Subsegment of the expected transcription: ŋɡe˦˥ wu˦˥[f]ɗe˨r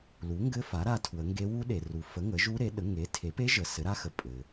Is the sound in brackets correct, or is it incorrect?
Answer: incorrect